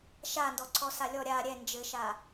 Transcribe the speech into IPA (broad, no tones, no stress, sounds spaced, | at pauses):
ʃ a n d ɔ ǀʰ ɔ s a lʲ ɔ ɾʲ a ɾʲ ɛ n d͡ʒ ɘ ʃ a